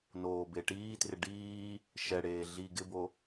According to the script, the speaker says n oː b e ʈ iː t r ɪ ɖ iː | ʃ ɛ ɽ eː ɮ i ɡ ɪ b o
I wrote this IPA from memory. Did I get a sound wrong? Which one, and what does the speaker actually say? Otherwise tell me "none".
none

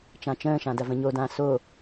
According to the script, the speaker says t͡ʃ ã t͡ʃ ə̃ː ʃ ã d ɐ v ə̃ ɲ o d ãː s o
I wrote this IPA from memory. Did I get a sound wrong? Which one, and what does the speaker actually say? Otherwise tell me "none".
none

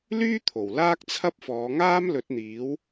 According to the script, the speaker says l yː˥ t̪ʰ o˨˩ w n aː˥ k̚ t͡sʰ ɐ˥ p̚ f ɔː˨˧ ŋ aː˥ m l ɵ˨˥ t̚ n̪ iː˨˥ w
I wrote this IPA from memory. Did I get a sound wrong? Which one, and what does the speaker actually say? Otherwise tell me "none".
n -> l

